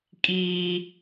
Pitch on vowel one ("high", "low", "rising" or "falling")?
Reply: high